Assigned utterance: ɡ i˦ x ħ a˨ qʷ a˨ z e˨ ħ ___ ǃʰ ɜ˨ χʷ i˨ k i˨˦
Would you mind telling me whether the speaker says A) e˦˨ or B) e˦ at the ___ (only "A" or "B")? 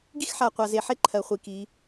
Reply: B